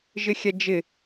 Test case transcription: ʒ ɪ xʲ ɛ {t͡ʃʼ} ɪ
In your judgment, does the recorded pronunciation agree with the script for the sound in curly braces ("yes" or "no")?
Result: no